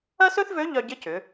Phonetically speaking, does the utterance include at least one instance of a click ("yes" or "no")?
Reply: no